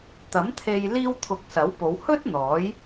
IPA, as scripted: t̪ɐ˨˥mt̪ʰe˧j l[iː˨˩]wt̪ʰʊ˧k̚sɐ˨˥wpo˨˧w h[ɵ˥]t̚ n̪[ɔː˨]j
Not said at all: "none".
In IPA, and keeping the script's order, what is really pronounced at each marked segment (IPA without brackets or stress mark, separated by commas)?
iː˥, ɵ˥, ɔː˨˥